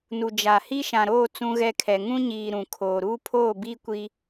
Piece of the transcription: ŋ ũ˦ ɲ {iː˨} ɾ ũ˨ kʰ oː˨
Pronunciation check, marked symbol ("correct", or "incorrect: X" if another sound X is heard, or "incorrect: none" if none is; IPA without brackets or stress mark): correct